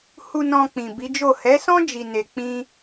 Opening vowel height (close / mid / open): close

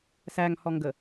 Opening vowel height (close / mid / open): open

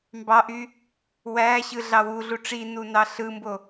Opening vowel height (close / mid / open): open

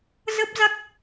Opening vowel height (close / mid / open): mid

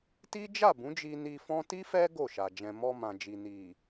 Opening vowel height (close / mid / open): close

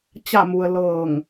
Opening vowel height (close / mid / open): open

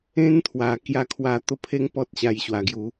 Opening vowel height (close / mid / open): mid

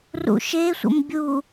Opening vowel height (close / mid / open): close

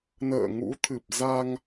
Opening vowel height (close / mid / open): mid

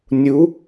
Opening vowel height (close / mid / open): close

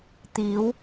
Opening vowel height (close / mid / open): close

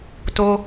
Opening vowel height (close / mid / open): mid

